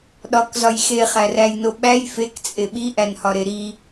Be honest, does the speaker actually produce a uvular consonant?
yes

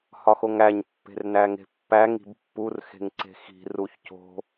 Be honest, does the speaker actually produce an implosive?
no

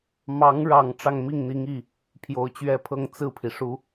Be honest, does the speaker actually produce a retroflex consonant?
yes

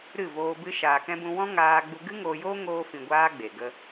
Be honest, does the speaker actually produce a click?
no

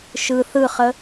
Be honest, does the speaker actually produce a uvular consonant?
yes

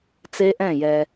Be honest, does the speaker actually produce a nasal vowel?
yes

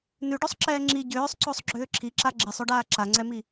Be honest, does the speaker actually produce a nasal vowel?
no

